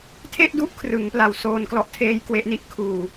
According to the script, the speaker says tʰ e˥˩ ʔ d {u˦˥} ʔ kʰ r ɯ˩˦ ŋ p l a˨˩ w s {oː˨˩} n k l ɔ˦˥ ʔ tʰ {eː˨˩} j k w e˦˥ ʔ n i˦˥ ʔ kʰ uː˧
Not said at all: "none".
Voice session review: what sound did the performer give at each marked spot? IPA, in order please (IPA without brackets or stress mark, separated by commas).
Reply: u˦˥, oː˧, eː˦˥